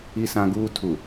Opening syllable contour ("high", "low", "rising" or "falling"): high